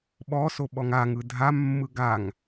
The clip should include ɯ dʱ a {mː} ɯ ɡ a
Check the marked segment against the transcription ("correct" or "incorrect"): correct